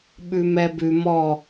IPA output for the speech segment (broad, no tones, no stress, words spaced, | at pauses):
ɓʉmɛbʉ mɔ